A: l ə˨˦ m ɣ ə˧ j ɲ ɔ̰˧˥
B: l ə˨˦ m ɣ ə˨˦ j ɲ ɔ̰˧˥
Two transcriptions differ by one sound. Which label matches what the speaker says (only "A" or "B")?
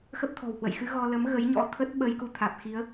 B